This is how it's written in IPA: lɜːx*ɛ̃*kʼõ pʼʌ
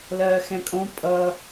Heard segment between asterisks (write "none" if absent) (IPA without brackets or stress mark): ɛ̃